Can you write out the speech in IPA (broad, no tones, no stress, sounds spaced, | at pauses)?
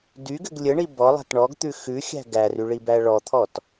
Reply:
d y ɡ ɘ ɡ lʲ ɘ ɳ i b ɔ lˠ æ̤ t ɳ ɔ ɡ t̪ ʉ x ʉ xʲ æ̤ ɡ æ r y ɭ i b æ ɭ ɔ t̪ʰ ɔ t